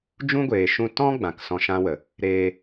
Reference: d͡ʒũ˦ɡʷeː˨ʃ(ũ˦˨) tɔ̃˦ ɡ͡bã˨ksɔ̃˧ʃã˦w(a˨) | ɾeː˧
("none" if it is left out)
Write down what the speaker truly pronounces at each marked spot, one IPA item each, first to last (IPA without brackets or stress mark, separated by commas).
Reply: ũ˧, ə˨